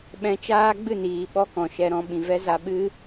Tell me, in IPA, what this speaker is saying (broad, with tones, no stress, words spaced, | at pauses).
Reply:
ɓɛ̃˧t͡ʃaː˦ɡ͡bɨ˦˨niː˨ ɓɔ˦kɔ̃˨ʃɛ˧ ɾɔ̃˧ɓĩ˨vɛ˦za˧ ɓɨ˦